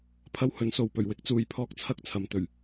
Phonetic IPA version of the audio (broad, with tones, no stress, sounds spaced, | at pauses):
pʰ ɐ˥ w h ɵ˨˥ n s o˨ w p ɵ˨˩ ɥ w ɪ˨˥ k̚ t͡s uː˨ j pʰ ɔː˧ k̚ t͡sʰ ɐ˥ k̚ t͡sʰ ɐ˨˧ m t̪ ɵ˨˩ ɥ